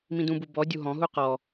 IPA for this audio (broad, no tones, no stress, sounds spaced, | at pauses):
m ĩ d ũ b u b ɔ dʲ u ɦ ɔ̃ ɦ u q ɔ